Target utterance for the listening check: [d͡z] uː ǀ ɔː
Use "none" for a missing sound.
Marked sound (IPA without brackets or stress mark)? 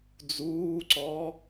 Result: d͡z